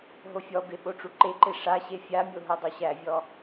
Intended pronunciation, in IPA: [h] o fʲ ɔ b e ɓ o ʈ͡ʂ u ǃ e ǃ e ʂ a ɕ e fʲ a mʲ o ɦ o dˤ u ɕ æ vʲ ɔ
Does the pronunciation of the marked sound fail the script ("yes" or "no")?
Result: yes